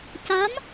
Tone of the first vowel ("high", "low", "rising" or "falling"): rising